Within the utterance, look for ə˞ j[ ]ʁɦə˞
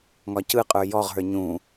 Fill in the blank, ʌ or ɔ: ɔ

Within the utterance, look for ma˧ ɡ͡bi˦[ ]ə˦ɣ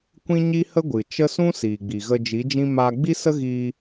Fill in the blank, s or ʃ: s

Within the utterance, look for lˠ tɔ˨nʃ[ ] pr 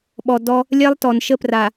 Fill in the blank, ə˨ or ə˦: ə˦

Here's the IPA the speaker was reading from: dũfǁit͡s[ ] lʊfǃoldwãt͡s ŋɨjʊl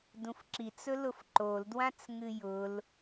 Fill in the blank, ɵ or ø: ɵ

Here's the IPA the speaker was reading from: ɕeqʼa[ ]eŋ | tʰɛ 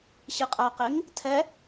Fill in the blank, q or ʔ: q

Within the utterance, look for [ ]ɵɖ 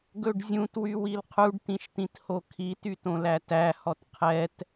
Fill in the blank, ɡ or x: ɡ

